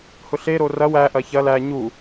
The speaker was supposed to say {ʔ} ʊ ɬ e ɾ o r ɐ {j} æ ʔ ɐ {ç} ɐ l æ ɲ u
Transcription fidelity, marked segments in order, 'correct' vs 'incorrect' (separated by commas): incorrect, incorrect, correct